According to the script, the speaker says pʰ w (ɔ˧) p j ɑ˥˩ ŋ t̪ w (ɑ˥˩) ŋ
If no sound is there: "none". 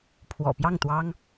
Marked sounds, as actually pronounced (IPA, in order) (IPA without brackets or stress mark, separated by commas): ɔ̰˨˩, ɑ˥